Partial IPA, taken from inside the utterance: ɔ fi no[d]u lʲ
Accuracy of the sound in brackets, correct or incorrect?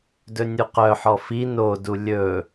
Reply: correct